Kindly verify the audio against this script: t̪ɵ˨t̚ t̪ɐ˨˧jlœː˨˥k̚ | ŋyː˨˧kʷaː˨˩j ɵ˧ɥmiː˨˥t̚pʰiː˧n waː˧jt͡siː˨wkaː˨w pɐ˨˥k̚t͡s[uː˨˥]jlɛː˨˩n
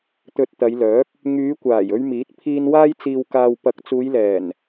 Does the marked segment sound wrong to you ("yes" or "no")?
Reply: yes